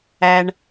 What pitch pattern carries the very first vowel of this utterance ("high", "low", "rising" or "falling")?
low